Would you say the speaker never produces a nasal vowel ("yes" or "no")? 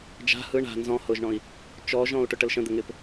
no